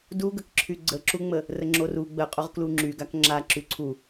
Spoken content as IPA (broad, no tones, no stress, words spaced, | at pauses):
duɡəkǁʰy ɡ͡ǀəǁuŋ͡mə | rəŋ͡ǁoru ɡ͡bəqʼoʁ kluŋ͡ǁyɡak ŋ͡ǁa ǁyǀʰu